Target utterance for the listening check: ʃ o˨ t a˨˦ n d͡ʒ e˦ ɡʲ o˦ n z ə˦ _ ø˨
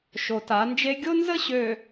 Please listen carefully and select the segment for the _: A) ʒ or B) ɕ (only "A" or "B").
B